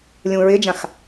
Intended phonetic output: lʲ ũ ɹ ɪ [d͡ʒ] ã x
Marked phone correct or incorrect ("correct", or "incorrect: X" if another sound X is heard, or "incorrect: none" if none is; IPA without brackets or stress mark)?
correct